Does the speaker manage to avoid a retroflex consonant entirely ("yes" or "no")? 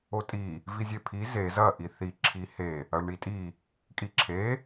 no